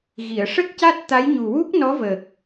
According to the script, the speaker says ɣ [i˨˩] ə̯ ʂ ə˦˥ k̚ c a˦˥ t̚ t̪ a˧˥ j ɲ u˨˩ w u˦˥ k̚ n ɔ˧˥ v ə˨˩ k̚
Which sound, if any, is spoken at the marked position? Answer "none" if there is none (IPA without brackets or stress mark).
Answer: i˨˩˨